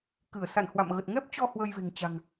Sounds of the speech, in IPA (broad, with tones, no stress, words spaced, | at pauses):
kɨ˧˩ə̯ sa̰˧˨nhwa̰˧˨mɣə˨˩t̚ ŋɛ˦˥p̚t͡ɕɔ˧ hwəː˧jve̤˨˩ŋt͡ɕa̤˨˩ŋ